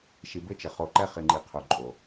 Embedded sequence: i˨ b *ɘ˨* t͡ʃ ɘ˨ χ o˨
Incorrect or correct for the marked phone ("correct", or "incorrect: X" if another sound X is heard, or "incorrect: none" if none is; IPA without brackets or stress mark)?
incorrect: ɘ˦